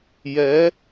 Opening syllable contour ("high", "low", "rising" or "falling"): rising